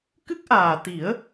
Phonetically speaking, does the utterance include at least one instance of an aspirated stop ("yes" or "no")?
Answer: no